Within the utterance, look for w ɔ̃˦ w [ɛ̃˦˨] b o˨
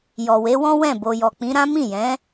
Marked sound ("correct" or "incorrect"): correct